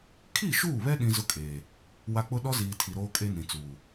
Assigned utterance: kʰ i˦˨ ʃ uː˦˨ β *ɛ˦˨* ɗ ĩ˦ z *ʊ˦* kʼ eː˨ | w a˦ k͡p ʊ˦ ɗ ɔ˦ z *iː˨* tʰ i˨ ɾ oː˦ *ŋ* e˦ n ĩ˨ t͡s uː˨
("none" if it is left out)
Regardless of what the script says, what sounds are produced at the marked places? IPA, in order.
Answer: ɛ˦, ʊ˦, iː˨, kʼ

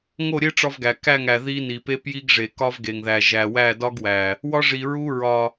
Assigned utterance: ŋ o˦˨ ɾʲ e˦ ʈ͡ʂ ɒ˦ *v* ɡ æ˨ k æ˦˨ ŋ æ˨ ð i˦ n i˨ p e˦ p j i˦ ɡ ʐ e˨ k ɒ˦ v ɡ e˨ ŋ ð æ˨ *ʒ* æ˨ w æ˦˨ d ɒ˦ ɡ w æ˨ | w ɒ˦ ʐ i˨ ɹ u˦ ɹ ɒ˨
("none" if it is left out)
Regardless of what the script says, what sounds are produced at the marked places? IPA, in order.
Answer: v, ʒ

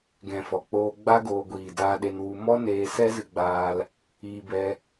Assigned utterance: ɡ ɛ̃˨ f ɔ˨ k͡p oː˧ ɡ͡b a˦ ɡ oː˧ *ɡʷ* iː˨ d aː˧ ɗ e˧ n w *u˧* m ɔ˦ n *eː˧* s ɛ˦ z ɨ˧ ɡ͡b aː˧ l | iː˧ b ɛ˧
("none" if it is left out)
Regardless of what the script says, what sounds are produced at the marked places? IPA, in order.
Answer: ɡʷ, u˧, eː˧

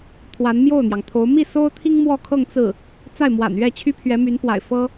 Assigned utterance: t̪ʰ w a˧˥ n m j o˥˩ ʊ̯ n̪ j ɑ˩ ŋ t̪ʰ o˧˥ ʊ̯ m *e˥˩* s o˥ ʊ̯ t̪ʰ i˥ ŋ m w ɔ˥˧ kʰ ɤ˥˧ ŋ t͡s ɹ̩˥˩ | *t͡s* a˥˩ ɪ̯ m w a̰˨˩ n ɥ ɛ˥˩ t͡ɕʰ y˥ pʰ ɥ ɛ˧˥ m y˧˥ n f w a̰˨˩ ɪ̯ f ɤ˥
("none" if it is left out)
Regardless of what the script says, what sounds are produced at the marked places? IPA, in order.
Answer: i˥˩, t͡s

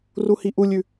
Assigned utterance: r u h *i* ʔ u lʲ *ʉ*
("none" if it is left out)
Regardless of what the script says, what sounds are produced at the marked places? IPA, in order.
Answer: i, ʉ

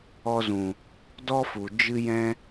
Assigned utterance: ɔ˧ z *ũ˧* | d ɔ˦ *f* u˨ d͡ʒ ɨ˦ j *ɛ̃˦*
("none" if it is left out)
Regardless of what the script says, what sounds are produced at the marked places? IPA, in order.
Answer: ũ˨, f, ɛ̃˦

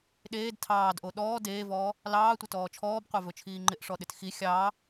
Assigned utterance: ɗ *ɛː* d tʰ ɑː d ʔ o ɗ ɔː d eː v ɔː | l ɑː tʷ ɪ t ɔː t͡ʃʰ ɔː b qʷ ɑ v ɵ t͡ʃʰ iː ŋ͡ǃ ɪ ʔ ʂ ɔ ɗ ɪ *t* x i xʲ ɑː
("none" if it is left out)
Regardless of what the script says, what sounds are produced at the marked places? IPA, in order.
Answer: eː, t

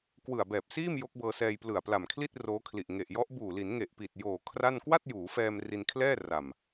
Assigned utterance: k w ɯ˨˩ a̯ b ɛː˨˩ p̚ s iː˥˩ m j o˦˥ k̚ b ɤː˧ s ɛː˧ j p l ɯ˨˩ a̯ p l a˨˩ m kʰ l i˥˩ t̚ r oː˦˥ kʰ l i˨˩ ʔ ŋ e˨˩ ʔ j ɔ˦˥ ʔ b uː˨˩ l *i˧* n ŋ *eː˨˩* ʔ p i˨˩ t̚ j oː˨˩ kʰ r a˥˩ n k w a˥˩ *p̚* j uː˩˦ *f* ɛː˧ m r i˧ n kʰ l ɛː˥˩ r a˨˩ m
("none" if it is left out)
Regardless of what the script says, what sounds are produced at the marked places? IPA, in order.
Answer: i˩˦, e˨˩, t̚, f

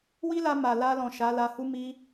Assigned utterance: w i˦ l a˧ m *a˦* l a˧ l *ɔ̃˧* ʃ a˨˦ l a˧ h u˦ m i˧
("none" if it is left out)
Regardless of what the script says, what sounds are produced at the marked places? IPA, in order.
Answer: a˨, ɔ̃˨

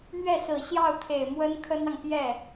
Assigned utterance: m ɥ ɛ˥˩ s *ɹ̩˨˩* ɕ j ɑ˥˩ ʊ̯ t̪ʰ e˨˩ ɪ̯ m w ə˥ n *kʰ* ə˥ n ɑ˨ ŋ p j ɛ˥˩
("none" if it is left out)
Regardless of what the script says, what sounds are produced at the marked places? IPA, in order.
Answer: ɹ̩˨˩, kʰ

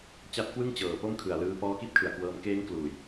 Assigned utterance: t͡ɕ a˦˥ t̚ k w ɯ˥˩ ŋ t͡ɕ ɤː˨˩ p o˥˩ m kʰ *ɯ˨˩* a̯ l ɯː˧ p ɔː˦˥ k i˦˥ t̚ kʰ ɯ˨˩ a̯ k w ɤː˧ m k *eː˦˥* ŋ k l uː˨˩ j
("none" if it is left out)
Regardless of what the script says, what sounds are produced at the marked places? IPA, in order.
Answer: ɯ˨˩, eː˦˥

